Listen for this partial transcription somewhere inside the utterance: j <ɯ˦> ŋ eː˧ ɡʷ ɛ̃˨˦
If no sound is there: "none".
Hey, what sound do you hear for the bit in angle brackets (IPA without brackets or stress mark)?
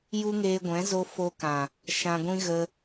u˦